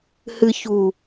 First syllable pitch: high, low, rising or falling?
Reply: low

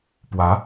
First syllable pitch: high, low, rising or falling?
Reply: rising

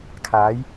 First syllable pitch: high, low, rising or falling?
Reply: rising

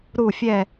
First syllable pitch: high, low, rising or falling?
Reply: low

